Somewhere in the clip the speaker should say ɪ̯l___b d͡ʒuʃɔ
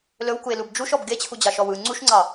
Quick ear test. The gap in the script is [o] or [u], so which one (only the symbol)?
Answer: u